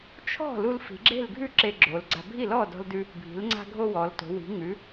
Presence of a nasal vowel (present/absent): absent